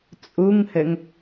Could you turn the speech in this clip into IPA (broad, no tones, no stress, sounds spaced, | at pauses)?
t͡sʼ u ŋ h ɘ ŋ